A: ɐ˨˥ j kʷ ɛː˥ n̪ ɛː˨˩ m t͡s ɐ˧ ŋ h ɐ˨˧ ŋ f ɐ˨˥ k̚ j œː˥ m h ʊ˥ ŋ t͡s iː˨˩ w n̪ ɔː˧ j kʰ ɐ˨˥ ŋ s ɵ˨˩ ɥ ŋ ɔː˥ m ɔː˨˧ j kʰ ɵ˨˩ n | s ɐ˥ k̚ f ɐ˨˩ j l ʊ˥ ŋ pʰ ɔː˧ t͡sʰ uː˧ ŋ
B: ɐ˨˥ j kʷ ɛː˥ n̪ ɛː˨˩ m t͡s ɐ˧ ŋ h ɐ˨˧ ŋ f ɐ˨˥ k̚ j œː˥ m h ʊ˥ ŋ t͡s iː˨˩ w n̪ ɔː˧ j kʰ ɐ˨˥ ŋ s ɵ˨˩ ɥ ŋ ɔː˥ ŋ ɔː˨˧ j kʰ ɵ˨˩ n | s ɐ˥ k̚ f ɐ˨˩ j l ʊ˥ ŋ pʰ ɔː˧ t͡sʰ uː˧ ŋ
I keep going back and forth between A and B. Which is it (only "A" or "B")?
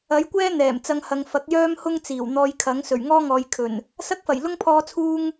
B